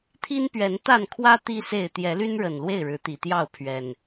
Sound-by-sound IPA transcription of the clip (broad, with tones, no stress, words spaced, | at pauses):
t̪ʰi˦npɥɛ˨˦nt̪a˥˨nkʰwä˦ t̪i˦se˥˨ɪ̯ t̪jɛ˨˦ly˦nɻə˨˩n lwe˥˨ɪ̯ɻɻ̩˨˦t̪i˨˩t̪jɑ˥˨ʊ̯ pʰɥɛ˨˩n